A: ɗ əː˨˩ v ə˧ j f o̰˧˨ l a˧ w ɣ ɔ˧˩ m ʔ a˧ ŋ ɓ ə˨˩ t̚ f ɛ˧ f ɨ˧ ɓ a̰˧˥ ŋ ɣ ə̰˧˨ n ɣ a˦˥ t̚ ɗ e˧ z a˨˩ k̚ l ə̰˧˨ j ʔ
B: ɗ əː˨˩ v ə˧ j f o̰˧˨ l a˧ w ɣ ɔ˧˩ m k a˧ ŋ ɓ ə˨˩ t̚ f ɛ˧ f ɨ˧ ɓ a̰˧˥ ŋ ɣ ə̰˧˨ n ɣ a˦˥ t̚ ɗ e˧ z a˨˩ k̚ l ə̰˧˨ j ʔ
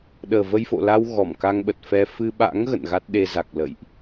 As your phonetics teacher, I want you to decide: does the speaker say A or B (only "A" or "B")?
B